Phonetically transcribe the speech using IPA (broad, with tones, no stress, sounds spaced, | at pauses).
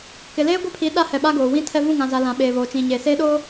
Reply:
k ɪ˨ l eː˦ ɡʷ ɛ˦ pʰ i˨˦ ɗ a˦ h ɛ˨ ɓ a˦ ɡ oː˨ w ĩ˦ tʰ ɛ˦ v ũ˦˨ ŋ ã˨ z a˨ l ã˨ ɓ eː˨ β oː˨ t͡ʃ ĩ˨ ɲ eː˨ s eː˦ ɗ oː˦